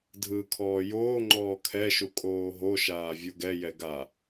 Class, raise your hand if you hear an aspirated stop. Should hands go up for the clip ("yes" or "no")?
yes